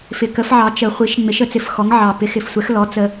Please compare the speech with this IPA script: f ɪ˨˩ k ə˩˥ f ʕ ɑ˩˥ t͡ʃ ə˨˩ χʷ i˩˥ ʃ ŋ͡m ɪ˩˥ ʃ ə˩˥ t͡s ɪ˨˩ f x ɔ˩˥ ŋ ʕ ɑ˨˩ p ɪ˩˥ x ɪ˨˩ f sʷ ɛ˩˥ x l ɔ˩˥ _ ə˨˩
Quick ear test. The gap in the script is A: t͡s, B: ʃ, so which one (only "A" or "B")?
A